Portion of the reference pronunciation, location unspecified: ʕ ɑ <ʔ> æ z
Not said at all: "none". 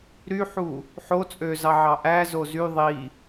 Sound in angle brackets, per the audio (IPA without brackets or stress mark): ʔ